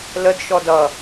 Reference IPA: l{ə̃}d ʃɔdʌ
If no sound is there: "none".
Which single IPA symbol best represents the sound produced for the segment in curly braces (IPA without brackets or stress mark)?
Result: ə